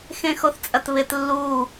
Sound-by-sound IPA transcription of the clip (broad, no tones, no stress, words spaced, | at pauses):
xẽxoθt͡sʼɐtβɪt lːu